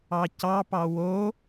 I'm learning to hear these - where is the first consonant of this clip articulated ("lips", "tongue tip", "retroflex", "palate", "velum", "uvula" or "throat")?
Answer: palate